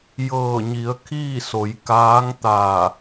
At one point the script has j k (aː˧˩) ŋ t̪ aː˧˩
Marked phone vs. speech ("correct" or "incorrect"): incorrect